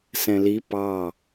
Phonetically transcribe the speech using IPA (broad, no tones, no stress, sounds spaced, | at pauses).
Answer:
s ɛ̃ l i p ɑ